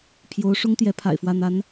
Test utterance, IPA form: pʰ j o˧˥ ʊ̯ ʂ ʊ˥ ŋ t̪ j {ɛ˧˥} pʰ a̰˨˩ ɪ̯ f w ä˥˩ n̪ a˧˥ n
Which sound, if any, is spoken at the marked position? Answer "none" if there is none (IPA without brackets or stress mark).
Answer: ɛ˧˥